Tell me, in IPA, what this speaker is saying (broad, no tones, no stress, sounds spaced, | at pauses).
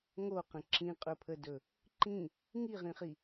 ŋ o q ə̃ ǁ ĩ qʼ ɵ pʰ ə d ɵ | ǃ ĩ | ŋ i ʁ ĩ χ i